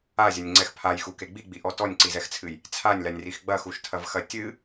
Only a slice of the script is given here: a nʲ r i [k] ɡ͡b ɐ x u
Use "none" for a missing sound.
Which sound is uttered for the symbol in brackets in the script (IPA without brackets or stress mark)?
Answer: x